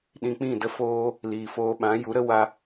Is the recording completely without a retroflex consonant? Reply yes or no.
yes